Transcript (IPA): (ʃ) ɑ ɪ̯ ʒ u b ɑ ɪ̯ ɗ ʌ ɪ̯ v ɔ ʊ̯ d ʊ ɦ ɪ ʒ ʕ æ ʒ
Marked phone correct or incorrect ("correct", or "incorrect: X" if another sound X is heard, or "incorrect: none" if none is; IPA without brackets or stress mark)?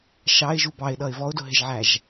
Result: correct